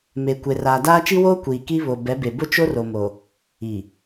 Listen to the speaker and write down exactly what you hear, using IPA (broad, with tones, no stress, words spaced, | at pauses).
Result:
me˨ kʷe˨raː˨daː˦ t͡ʃi˦woː˦ kʷiː˨ki˦βo˨ bɛ˨˦be˨ bʊ˦t͡ʃo˦r o˨mo˨ | i˨